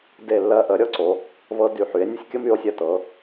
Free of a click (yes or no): no